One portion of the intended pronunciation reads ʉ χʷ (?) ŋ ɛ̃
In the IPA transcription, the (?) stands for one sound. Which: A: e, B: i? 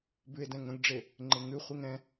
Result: B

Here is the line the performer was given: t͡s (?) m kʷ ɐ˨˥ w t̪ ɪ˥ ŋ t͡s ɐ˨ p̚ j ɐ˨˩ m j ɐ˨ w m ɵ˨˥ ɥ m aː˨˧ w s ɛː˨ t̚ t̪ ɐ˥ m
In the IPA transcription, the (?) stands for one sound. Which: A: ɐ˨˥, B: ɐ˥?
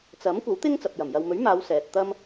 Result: A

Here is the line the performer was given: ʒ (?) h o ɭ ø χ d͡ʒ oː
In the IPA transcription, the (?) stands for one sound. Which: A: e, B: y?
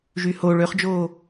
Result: B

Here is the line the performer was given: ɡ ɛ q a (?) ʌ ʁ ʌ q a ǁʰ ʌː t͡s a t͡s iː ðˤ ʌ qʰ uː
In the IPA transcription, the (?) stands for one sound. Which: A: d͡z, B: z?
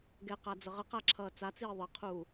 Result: A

